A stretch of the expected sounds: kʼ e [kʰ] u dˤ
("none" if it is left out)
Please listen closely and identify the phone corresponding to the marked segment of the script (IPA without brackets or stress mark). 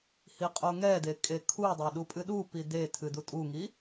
kʰ